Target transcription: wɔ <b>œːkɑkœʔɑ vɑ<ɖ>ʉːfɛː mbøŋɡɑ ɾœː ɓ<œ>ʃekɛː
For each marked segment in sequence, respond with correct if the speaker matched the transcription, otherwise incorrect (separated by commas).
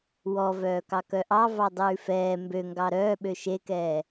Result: incorrect, incorrect, incorrect